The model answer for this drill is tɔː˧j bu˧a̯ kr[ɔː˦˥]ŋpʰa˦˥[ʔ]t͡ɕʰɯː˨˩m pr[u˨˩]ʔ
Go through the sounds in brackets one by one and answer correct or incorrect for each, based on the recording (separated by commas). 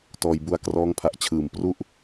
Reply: correct, correct, incorrect